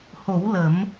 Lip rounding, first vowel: rounded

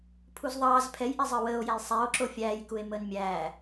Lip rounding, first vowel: rounded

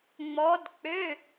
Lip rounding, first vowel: rounded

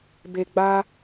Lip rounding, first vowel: unrounded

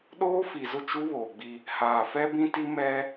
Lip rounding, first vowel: rounded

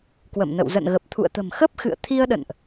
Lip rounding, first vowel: unrounded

